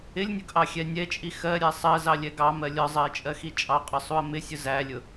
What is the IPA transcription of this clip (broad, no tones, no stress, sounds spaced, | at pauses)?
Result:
ɪ lʲ nʲ ʊ ɡ ʔ ɑ xʲ ɛ nʲ ɛ t͡ʃʼ i x ɜ ɾʲ æ sˤ ɜ z ɑ lʲ ɛ ɡ ɑ m ɜ lʲ ɒ zˤ ɜ ɪ̯ t͡ʃʼ ɜ x i t͡ʃʼ ɑ qʼ ɒ sˤ u ə̯ m ɪ sʲ ʊ z æ lʲ ʊ